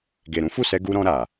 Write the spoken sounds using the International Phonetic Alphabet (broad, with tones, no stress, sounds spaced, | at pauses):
ɡ e˨ ɾ ũ˨˦ f u˦˨ s ɛ˧ ɡ u˧ ɾ ɔ̃˧ ɾ a˨